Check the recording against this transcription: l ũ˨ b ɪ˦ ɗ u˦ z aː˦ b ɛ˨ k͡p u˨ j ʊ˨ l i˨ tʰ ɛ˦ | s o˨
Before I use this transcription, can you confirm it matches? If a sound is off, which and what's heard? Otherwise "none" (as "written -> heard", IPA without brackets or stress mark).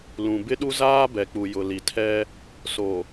none